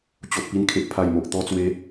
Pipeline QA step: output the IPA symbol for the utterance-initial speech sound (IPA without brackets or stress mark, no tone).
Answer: t͡ɕ